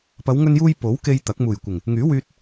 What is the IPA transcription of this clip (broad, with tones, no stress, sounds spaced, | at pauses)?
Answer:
p ɐ˨˧ w ŋ ɵ˧ n j uː˧ j p o˨˥ w k e˧ j t̪ ɐ˨˥ k̚ m uː˨˩ j kʷ ɪ˨˩ ŋ | ŋ yː˨˥ w yː˧ t̚